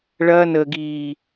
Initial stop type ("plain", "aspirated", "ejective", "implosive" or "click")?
plain